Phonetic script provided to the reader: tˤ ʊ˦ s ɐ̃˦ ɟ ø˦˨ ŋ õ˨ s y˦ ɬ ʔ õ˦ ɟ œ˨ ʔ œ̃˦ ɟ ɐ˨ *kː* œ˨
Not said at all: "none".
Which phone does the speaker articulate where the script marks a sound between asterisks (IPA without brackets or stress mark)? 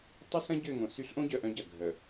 ɡʱ